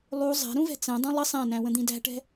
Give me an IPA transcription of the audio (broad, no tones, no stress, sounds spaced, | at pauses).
lˠ u zˤ æ̤ ɾ ũ v ɛ̤ t͡s ɛ̃ dˤ ũ lˠ ə sˤ æ̃ n æ̃ w ə̃ d̪ ĩ d æ̤ ʈ ɛ̤